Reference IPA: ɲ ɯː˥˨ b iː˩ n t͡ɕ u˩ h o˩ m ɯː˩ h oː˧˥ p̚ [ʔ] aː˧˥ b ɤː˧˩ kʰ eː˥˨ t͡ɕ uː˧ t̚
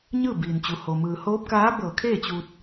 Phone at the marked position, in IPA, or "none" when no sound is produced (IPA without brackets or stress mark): k